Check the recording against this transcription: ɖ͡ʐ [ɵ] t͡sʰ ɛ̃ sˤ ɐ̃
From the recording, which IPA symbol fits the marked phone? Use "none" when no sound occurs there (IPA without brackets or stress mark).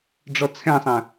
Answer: ɔ